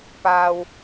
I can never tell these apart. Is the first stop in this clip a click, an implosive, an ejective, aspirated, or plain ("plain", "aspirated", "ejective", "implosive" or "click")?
plain